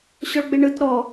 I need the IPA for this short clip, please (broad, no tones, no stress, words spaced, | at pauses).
ɕɔɭɡ͡beɳɯt ɾɔ